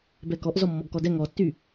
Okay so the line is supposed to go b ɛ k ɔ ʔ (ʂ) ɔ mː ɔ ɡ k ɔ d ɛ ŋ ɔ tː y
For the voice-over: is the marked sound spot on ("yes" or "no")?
no